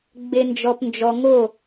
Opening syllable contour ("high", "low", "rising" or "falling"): low